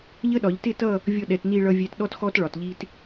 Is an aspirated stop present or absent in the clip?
absent